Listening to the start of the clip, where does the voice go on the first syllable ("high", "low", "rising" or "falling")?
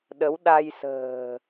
rising